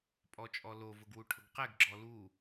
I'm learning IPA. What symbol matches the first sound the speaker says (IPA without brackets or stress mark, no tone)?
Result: pʼ